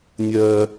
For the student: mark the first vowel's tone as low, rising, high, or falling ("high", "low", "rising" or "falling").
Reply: high